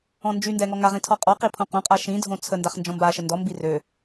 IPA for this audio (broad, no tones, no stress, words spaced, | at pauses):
ɔ̃nd͡ʒyndɛ ŋɔŋaʁĩ tʰɔqʼɔqi pʰõqõqʼa ʃĩdʱõ t͡sʰə ndaχnd͡ʒɔ̃mbaʃə ndɔmbi rø